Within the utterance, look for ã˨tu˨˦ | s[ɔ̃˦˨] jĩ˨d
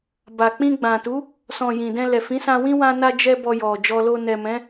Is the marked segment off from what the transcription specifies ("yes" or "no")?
yes